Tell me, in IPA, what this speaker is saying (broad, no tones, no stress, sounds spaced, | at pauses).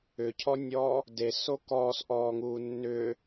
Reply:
ʏ cʰ ɔ nʲ ɔː | d e s o k ɔː s ʔ ɔː ŋ uː nː ʏː